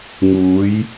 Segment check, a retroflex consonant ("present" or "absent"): absent